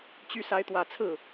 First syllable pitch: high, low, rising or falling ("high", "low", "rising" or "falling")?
rising